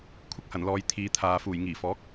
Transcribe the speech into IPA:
kʷʰɪ˥k̚hɐ˨˩nlɔː˨j t̪ʰiː˨˧t̪ʰaː˨ fuː˨˩jŋiː˨˩fɔː˨˥k̚

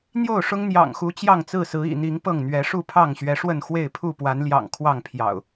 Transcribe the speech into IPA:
n̪jo˥˨ʊ̯ʂʊ˦ŋ n̪jɑ̰˨˩ŋxu˨˦ t͡ɕjɑ˥˨ŋt͡sɹ̩˥˨sɹ̩˨˦ ḭ˨˩n̪i˨˦ŋ pɤ˥˨ŋn̪ɥɛ˨˦ ʂu˥˨pʰɑ˥˨ŋɕɥɛ˨˦ʂwə˥˨n xwe˥˨ɪ̯pʰu˥˨pwa˨˦nljɑ̰˨˩ŋ kʰwɑ˥˨ŋpʰjɑ̰˨˩ʊ̯

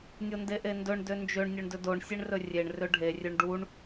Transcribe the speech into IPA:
nʲondeʔendɵɳ dønd͡ʒøɳ nʲɵɳdɵdoɳ sʲeɳrɵrʲeɳ røɖʱe rʲøɳɖuɳ

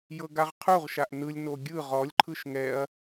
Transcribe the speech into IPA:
jɤɡaʁqʰuʁʃaʔ nɯlʲno ɡʲɯ ʁɔlʲǃʰɯʃ ŋɛɐ̯

